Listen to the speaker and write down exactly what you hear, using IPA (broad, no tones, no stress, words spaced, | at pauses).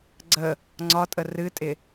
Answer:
ɡ͡ǀə | ŋ͡ǀɒtʼə rɨtʼɪ